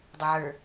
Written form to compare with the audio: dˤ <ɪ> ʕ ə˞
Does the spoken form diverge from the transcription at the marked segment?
no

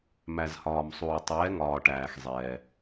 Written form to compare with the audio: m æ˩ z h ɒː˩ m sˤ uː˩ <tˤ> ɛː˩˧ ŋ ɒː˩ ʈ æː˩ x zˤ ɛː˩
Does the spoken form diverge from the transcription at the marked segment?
no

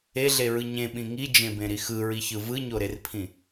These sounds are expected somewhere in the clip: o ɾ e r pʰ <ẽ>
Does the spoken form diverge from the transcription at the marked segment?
yes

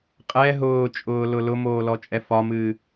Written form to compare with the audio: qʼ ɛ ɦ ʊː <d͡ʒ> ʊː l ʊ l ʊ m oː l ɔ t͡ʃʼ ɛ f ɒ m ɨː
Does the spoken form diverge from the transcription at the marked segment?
yes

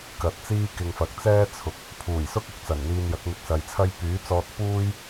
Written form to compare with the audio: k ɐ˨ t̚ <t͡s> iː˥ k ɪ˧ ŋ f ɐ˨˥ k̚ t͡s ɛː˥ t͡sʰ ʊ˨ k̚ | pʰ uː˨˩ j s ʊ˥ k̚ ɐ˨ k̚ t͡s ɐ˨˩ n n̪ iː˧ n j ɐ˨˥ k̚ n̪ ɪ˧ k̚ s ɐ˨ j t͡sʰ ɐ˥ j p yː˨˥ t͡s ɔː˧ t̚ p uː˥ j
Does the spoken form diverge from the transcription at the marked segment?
no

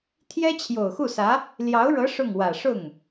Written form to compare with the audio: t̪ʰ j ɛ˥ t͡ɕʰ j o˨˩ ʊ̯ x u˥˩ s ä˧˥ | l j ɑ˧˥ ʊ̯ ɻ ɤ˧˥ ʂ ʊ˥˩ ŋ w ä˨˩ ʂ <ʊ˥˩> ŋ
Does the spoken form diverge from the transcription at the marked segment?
no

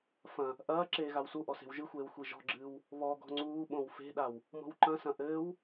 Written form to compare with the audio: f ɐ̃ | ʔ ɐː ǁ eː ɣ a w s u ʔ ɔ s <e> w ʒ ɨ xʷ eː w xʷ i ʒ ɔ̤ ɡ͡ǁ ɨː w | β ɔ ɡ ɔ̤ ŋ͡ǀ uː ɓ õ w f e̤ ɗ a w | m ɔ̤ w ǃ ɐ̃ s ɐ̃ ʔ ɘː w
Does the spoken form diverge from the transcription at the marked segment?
yes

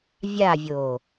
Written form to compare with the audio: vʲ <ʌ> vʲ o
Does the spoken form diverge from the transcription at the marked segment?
yes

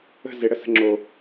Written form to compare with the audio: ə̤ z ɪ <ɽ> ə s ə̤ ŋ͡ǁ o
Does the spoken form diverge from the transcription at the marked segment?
no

